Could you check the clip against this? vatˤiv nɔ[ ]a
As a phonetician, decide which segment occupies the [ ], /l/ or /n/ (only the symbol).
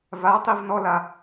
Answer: l